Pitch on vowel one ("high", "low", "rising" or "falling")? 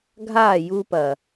falling